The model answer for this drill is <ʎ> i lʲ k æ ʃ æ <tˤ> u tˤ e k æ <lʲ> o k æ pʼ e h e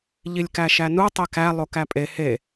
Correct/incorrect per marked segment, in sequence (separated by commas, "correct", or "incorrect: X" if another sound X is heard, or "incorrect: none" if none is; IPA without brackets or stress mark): correct, incorrect: n, incorrect: lˠ